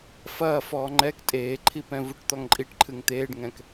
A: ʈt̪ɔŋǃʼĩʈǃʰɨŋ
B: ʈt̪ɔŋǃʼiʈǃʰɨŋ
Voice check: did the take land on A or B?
B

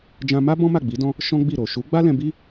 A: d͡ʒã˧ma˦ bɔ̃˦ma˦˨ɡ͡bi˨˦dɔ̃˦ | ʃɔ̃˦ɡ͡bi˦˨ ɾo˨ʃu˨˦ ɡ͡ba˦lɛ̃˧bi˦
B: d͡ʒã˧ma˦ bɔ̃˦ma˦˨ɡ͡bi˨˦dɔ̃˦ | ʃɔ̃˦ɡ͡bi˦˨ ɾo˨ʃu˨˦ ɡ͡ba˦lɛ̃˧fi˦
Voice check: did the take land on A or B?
A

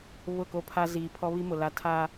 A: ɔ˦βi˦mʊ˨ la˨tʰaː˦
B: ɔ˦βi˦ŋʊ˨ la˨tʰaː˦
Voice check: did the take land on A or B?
A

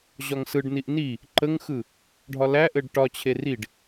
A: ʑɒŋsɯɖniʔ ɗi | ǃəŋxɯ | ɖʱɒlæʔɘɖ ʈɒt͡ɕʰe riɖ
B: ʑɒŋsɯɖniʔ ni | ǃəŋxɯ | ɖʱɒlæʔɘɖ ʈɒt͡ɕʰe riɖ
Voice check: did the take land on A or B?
B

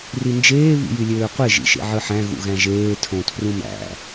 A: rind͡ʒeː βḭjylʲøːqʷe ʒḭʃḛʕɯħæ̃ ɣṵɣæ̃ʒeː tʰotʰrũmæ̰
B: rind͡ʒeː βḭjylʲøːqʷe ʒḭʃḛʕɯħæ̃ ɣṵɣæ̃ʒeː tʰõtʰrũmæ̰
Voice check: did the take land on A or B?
B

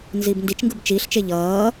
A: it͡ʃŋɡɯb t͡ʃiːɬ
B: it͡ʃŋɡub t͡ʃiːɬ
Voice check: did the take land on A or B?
A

